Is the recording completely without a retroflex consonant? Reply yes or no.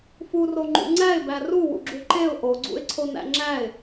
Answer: yes